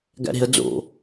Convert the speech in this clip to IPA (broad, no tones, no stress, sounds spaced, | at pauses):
ɡ æ̰ ɾ e̤ ə̯ d͡z o̰